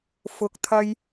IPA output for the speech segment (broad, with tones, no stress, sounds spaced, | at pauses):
f ʊ˨ k̚ t̪ʰ ɐ˧ j